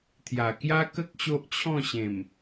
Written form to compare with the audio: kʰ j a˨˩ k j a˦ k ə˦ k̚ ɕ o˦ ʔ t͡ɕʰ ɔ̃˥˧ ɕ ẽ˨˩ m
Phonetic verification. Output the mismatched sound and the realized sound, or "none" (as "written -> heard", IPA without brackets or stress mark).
kʰ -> t̪ʰ